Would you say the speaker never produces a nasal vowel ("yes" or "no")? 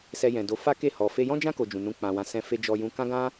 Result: no